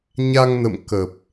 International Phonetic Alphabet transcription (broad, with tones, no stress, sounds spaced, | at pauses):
ɲ a˧ ŋ n ə̰˧˨ m k ə˨˩ p̚